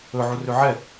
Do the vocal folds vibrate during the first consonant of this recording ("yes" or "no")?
yes